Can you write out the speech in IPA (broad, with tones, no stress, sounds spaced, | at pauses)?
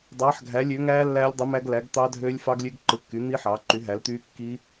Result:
dˤ ɑː˨˥ ħ ɡʱ æ˨˥ lʲ øː˨˥ ŋ æː˦˥ lː æː˦˥ lʲ dˤ ɯ˨˥ m æ˦˥ ɡ l æ˨˥ ɡ t̪ ɑ˦˥ dʱ øː˦˥ lʲ f ɑ˦˥ ɡ lʲ ø˦˥ ɡ ǃ ɯ˨˥ kː y˨˥ n̪ i˦˥ ħ ɑː˨˥ ǃ y˨˥ ɦ æ˨˥ l t̪ yː˦˥ kː i˦˥